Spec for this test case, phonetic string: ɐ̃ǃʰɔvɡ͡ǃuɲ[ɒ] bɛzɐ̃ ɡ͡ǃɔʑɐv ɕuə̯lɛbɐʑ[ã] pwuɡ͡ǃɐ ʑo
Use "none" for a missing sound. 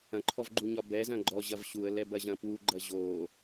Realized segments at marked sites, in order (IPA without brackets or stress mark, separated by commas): ɒ, ɐ̃